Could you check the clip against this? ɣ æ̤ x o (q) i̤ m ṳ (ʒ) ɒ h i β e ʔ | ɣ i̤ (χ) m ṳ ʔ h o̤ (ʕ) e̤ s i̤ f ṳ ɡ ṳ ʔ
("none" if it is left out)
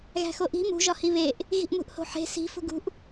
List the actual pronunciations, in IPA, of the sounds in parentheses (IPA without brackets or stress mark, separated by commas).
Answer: ʔ, ʒ, ʔ, ħ